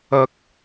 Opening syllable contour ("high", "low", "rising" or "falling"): high